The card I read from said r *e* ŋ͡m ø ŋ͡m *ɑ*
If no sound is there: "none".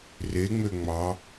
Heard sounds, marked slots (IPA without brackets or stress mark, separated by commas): e, ɑ